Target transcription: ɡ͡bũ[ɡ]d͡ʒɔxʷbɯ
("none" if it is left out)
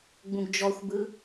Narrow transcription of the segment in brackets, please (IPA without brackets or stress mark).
ɡ